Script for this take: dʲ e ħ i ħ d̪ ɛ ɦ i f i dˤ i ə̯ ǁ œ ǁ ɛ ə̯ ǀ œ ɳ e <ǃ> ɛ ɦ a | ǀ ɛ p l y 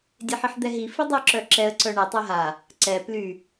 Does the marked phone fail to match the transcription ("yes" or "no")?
yes